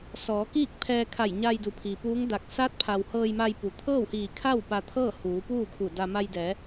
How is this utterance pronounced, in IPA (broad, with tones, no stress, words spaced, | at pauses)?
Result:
sɔː˩˧kiː˥˨k̚pʰɛː˧ kʰa˧˩jɲa˧jdu˩˧ pʰiː˩puː˧˥ŋda˧˩k̚ sa˧˥t̚pʰa˩w hɤː˧jma˧j pu˩ t̪ʰɤː˥˨whiː˧˩kʰa˥˨w pa˧t̪ʰɤː˥˨ huː˩˧puː˥˨kʰu˧˩da˧ ma˧jdɛː˩˧